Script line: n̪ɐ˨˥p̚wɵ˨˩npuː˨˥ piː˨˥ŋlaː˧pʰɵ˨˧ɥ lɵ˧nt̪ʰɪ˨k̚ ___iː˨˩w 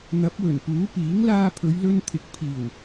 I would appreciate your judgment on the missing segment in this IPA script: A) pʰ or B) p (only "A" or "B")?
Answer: A